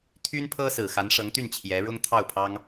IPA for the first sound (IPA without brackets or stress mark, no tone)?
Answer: t̪ʰ